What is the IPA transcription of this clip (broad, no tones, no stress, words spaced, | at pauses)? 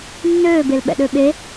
nːøːbel ɓɛ̰ɗøɓe